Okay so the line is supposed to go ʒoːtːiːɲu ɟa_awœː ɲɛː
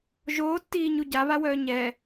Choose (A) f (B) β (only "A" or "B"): B